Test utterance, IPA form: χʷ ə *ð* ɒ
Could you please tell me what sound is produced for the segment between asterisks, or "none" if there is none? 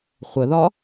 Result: ð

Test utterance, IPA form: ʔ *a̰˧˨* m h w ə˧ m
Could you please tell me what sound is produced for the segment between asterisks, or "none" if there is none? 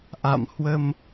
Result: a̰˧˨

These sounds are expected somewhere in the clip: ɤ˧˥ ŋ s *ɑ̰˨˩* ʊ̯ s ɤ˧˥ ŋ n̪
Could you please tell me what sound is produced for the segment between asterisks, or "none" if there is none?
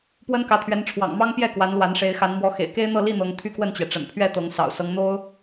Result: ɑ̰˨˩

